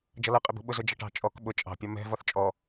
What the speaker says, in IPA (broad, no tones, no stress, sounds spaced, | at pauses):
d͡ʒ ʌ l ʌ qʼ ɪ b ṳ ɓ ʊ z ʊ d͡ʒ ʌ ʈ ɑ̤ t͡ʃʼ ɔ k ɓ ʊ t͡ʃʼ ɑ̤ pʲ ɒ m ɛ̤ v ɒ θ t͡ʃʼ ɔ